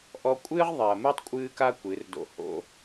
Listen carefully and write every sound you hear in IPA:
ʔ ɔ˧ kʷʼ ɨː˦ ʁ ðˤ ɛ˨ ɐ̯ m ɨ˦ tˤ kʷʼ ɨː˦ k a˦ kʷ ɨ˨˦ r d o̰˦ h o̰˦

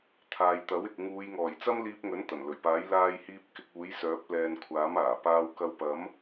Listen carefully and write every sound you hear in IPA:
t̪ʰ aː˨ j t̪ ɐ˨˥ w ɪ˨ k̚ ŋ uː˨˧ j ŋ ɔː˨˩ j t͡s ɐ˥ m l iː˧ p̚ ŋ ɵ˨˥ n t̪ ɐ˨˩ n l ɵ˨˩ ɥ p aː˨˥ j l aː˧ j h iː˧ p̚ k ɪ˧ k̚ uː˨˥ j s œː˨˥ p̚ l ɛː˧ n kʷʰ aː˨˥ m aː˨˩ p aː˧ w k ɐ˧ w p ɐ˨˥ m

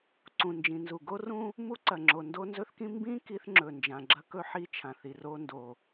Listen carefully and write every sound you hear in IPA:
ǀ ũ˩ n d͡ʒ ĩ˩ n z u˩ ɡ o˥ r ũ˥ | m u˥ ǀ ɐ˩ ŋ͡ǁ o˩ n d o˥ n z ɵ˥ θ k ĩ˥ m b ĩ˥ k i˥ θ ŋ͡ǁ ɵ˩ n d͡ʒ ã˩ ɡ͡ǁ ɐ˥ k ɵ˥ ħ i˥ t͡ʃʰ ã˩ θ i˩ r o˥ n d o˩

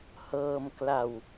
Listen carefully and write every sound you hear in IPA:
h ɤː˧ m k l a˧ w

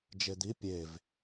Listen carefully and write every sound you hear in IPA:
d͡ʒ e d̪ i pʲ e v

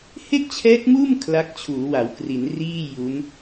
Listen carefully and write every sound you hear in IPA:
h e˥˩ k̚ t͡ɕʰ ɛː˦˥ k̚ m uː˥˩ m kʰ l a˦˥ k̚ t͡ɕʰ uː˩˦ w a˩˦ w k r i˩˦ n r iː˥˩ j u˦˥ n

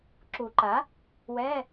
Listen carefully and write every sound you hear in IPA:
ǁ u˨˩˦ ǃ a˩˥ | w ɛ˧˥˧

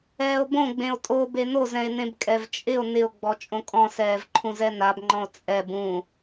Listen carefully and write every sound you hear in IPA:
ɛː o̯ b õ ɡ͡b ẽ o̯ tʼ o b e n o z ɛ̃ e̯ n ẽ b kʼ ɛ v t͡ʃʼ ɪ o̯ n ɪ o̯ ɡ͡b ɔ t͡ʃʼ õ kʼ ɔ̃ s ɛː v ǃʰ ũ z ɛ n a b ŋ͡ǃ ɔ̃ o̯ t͡sʼ ɛ b ũ

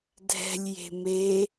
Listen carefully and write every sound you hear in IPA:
dʱ ɛ̤ lʲ j e̤ m e

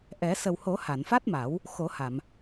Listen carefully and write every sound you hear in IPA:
ʔ ɛ˨˩˦ s ə˨˩ w h o˨˩˦ h a˨˩˨ n f a˦˥ t̚ m a˨˩˦ w | x o˨˩˦ h a˨˩˨ m

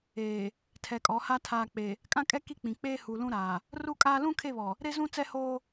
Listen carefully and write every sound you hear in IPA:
eː˨ | tʰ ɛ˨ kʼ ɔ˨˦ h a˦ tʰ aː˨ k͡p e˨ | kʼ ã˦ kʼ ɛ˦ k i˦ k͡p ĩ˨ k͡p eː˦ h u˨ l ũ˦ ɾ aː˨ | r u˦ kʼ aː˦ l ũ˦ kʰ e˦˨ β ɔ˨ | ɾ e˦ z ũ˦ t͡s ɛ˦ h oː˦

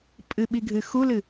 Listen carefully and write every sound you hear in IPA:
pʼ ɨ ɓ i ɡʱ ɨ x u l ɨ

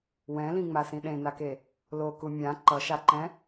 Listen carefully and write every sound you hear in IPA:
w ɛ̃ l ĩ ŋ͡m a s ĩ ɗ ẽ n a k e | l o k u mʲ ã ǃ ʌ ʃ a ǃ ɛ̃

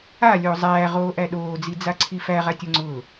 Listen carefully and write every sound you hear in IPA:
a lʲ oː zˤ æː ʁ oː ʔ æ ɗ oː d͡z i d͡z a ǀʰ i f æ ʁ a tʲ o ŋ͡ǀ ʊː

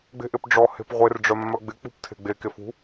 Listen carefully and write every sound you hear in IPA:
ɡ͡b e̤ ʔ ɪ p ɖ͡ʐ ɔ h e̤ p ʁʷ e r ɖ͡ʐ œ mː œ ɡ͡b ɪ k͡p ṳ p tʰ e̤ ɡ͡b e k e f ṳ

